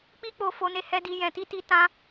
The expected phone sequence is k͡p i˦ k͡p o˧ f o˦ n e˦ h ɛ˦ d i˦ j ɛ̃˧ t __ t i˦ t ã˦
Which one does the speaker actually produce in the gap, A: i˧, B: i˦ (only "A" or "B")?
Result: B